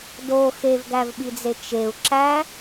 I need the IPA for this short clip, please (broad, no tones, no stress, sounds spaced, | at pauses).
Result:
d o x e v ɡ æ v ɓ i d͡z e t͡ʃ e u̯ ǁ æ